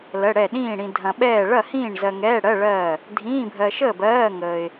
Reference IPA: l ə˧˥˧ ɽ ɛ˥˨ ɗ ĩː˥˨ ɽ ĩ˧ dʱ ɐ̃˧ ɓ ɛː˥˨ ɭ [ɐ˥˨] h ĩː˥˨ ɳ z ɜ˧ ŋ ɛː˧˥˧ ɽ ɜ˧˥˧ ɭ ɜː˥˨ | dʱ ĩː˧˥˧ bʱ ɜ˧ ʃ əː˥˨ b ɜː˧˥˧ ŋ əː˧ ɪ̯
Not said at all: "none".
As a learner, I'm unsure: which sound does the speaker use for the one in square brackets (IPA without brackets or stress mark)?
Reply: ɐ˥˨